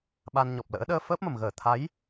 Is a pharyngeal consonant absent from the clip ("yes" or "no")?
yes